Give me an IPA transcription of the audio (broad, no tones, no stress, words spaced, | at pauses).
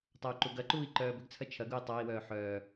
tˤɐu̯ǃuɡɐǃuːi̯ ǃœːbʏɡt͡sʰɐ t͡ʃʰɐɡ ui̯tˤai̯wœː ħœ